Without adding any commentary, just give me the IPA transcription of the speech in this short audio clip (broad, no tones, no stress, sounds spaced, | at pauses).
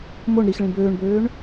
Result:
m o ɳ ɾ i x ɭ ĩ b øː ɳ b øː ɳ